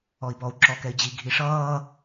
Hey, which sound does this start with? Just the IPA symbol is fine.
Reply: ɔ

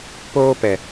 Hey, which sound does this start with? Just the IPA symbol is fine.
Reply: p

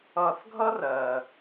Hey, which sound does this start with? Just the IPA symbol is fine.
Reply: ʌ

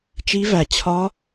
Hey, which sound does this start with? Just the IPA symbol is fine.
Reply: t͡ʃ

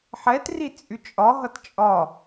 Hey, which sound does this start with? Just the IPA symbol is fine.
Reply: ħ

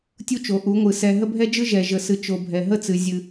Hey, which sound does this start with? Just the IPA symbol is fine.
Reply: tʲ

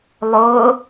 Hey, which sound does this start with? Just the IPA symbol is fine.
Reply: lˠ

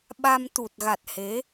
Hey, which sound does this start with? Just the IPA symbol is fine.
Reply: ɓ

